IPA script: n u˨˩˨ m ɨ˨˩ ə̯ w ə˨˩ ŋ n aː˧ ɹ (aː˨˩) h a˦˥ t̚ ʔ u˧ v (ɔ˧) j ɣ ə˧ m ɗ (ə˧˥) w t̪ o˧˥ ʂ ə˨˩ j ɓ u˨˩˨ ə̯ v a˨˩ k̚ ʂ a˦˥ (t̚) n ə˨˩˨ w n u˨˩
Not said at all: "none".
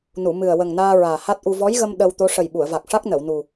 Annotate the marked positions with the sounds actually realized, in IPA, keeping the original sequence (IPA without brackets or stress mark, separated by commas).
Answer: aː˨˩, ɔ˧˥, ə˧, k̚